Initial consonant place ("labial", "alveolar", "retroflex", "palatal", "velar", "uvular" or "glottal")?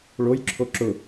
retroflex